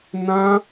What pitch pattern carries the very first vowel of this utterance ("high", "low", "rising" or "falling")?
high